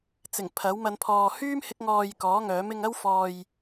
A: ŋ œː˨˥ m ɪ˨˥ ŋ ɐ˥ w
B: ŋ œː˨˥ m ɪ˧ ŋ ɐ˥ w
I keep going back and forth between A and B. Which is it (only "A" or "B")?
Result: B